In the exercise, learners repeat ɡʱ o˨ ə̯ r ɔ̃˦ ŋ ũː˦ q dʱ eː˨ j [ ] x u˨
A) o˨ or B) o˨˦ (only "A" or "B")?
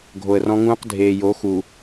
B